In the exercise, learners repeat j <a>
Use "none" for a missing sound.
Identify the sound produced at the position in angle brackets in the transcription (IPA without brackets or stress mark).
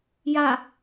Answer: a